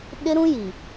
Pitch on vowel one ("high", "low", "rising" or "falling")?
high